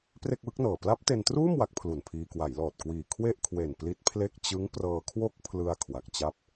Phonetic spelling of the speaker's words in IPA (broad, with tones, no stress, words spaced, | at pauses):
pre˥˩k̚wɯ˦˥k̚nɤː˨˩ pla˦˥p̚te˧ntruː˥˩m wa˦˥k̚pʰlu˨˩npʰiː˧ kwa˩˦jlɔː˨˩t̚kwiː˨˩ kʰwe˥˩ʔkʰwe˨˩n pli˦˥t̚pʰle˥˩k̚ t͡ɕɯ˦˥ŋprɤː˧kʰwo˥˩k̚pʰlɯ˧a̯ kʰwa˨˩k̚t͡ɕa˦˥p̚